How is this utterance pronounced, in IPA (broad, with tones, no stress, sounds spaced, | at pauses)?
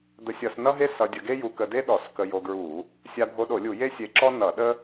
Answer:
d̪ ə˧ sʲ ʌ˧˩˧ s n ʌ˥ ɦ e˥ s ʌ˧ dʲ ə˧ ɡ e˥ j u˧ k ə˧ d e˥ ɗ ɔ˧˩˧ s k ə˧ j o˧ ɡ ɹ u˧˩˧ | sʲ a˧ bʱ o˧ ɗ o˧˩˧ lʲ u˧˩˧ j e˥ sʲ e˧ ǁ ɔ˥ n ʌ˧˩˧ ɗ ə˥